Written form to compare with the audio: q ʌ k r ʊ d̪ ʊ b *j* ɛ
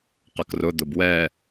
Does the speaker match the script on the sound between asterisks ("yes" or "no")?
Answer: no